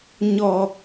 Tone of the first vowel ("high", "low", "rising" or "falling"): high